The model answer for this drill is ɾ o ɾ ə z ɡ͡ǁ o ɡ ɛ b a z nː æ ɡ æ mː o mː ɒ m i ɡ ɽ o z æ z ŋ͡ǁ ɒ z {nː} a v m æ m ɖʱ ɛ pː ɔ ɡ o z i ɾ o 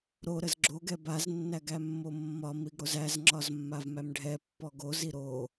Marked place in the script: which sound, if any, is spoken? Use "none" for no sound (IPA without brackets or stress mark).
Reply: mː